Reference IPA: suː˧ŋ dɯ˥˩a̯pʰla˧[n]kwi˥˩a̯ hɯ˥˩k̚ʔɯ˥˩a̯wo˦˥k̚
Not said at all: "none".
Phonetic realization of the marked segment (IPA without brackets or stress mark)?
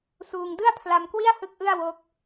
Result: m